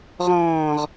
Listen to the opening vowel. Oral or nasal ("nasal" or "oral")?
nasal